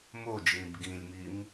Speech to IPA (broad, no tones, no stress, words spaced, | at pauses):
mod͡ʒĩb ɡĩlʲmim